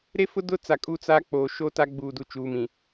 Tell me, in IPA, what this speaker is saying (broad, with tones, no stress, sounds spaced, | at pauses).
ɾ e˦ f ʊ˦ d ʊ˦ t͡s a˨ kʼ u˦ t͡s aː˦ k͡p oː˨ ʃ o˦ t a˦ ɡ͡b uː˨ d u˨ t͡ʃ uː˨ m ĩ˨